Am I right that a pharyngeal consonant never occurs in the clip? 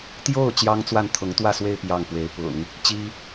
yes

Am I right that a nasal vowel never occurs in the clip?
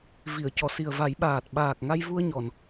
yes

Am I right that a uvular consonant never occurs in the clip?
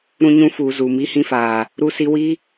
yes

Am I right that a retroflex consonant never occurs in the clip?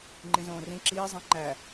yes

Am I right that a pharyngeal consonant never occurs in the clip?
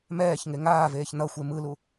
yes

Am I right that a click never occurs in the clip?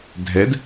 yes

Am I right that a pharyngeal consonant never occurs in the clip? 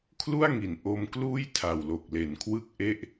yes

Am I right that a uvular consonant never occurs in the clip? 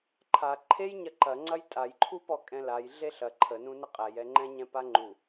no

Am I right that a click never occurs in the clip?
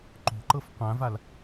no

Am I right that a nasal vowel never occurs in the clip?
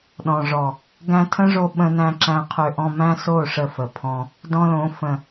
no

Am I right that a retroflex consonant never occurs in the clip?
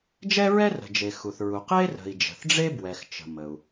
no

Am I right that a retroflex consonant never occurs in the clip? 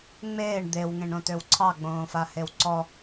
no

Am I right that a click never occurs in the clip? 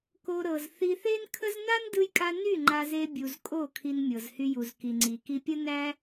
no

